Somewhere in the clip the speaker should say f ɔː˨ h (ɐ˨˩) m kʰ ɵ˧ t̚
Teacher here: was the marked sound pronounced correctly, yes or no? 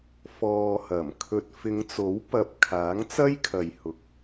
yes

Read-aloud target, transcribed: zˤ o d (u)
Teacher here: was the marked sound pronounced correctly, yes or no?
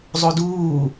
no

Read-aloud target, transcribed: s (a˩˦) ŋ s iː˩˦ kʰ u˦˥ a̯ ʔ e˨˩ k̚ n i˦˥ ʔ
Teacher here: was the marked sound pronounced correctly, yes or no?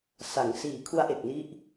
yes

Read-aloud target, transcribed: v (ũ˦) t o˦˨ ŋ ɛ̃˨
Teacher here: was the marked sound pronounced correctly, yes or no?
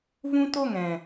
yes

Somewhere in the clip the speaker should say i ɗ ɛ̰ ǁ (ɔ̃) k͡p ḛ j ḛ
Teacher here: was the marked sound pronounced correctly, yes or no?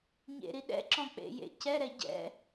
yes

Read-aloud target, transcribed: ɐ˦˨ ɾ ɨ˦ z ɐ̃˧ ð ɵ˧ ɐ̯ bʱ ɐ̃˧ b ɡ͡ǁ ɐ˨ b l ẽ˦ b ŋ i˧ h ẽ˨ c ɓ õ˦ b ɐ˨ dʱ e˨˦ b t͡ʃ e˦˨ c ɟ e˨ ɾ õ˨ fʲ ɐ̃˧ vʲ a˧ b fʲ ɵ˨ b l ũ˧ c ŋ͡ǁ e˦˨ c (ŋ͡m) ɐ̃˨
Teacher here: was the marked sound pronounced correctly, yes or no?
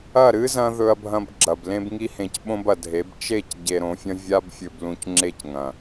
no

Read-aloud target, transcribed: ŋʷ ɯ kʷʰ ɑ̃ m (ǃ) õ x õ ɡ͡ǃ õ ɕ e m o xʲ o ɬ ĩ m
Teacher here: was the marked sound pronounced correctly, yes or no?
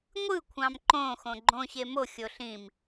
yes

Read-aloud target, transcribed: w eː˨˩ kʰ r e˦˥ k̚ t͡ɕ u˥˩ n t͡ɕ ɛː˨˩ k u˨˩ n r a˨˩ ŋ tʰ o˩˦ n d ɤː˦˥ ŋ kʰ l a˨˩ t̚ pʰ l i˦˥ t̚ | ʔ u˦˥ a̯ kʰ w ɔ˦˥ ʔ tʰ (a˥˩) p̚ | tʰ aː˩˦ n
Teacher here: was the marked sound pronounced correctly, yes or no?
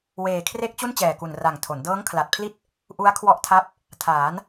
no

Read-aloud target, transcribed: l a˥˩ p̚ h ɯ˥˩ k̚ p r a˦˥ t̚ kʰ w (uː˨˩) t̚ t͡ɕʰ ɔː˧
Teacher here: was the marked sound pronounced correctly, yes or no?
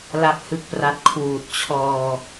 yes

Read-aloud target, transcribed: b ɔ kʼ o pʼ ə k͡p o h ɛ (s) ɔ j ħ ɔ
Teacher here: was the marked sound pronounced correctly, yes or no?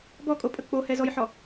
no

